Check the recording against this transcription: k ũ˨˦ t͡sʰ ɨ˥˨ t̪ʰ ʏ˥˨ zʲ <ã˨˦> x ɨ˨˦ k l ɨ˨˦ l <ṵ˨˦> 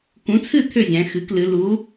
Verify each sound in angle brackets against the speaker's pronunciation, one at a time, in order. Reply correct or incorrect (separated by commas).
incorrect, incorrect